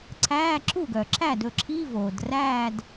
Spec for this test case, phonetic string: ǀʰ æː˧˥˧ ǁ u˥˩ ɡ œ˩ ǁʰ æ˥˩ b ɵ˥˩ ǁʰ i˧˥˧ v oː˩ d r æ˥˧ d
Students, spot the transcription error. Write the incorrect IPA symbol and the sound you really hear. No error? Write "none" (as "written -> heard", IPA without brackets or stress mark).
b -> d